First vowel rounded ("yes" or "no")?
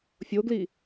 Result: yes